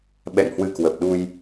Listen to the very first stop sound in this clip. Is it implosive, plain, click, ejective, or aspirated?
implosive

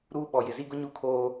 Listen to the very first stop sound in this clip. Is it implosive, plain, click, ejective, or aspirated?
implosive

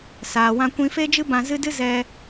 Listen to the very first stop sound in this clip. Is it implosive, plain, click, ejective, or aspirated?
plain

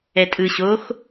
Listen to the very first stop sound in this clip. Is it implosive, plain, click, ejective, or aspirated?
ejective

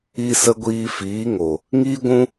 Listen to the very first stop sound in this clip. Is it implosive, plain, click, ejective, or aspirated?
plain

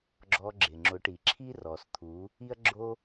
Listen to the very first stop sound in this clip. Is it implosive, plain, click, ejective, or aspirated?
click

